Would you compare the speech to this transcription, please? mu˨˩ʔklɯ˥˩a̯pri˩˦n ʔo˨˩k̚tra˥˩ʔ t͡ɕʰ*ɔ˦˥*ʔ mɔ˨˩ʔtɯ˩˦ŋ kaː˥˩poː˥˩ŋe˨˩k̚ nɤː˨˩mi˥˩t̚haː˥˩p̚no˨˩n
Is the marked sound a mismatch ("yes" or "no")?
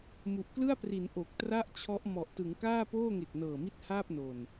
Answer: no